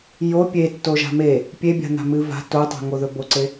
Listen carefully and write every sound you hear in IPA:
jo pʲe tːoʒa̤me | pʲebʲa̤n̪a̤ mɨva̤ totˤe̤ ŋoðɵboǀe

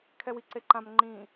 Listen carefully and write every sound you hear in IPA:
kʰɛwiǀeǃãm ŋ͡ǃĩ

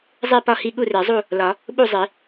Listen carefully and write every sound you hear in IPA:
zˤe˥˨pɒ˥˨hi˥˨ ɠu˥˨re˨˩˦zˤu˥˨ | lɒ˨˩˦ | ɓu˥˨zˤi˨˩˦

